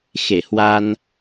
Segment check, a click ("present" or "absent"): absent